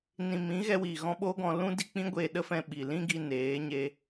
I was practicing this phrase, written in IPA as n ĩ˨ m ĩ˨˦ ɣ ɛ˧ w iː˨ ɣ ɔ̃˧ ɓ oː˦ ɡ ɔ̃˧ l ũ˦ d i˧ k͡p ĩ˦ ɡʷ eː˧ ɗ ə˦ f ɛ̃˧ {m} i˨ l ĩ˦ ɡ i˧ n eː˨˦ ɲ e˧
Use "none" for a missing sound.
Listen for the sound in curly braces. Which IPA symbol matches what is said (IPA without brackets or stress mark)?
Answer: ɓ